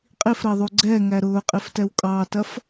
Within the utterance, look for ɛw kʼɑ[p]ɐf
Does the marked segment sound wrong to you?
yes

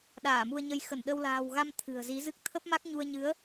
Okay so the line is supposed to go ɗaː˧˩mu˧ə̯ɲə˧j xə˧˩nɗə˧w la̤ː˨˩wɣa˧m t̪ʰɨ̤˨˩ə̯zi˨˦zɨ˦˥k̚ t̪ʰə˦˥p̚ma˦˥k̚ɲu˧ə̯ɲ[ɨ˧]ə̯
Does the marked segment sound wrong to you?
yes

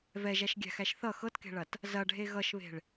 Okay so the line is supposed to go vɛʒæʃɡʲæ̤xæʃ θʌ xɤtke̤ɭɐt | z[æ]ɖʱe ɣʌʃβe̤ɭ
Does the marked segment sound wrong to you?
yes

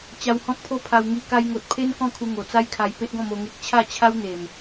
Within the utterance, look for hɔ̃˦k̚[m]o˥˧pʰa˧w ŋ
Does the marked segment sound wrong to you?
yes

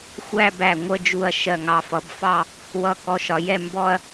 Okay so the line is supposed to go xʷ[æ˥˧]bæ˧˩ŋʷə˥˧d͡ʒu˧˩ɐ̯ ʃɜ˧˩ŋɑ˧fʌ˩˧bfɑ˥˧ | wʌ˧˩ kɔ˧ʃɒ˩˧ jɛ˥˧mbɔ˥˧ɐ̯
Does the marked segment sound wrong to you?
no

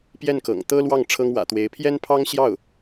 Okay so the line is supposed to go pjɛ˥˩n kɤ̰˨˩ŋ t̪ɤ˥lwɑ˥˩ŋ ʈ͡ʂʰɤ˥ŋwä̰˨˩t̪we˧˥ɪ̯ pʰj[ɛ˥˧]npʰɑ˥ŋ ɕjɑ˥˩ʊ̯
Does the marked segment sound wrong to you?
yes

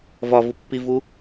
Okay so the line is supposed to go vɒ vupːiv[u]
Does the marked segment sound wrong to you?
no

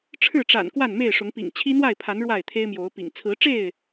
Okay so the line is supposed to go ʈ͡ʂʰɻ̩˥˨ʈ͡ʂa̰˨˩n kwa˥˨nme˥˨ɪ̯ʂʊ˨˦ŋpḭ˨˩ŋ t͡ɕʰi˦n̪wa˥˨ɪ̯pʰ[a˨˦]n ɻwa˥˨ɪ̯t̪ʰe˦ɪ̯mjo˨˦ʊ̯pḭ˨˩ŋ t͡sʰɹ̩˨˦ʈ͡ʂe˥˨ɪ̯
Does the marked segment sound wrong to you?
no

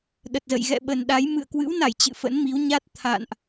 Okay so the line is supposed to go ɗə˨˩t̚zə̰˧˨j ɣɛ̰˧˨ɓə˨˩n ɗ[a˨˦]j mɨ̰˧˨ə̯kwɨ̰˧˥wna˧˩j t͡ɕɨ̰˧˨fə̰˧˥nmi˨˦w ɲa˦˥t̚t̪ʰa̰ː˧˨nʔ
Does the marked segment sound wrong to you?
no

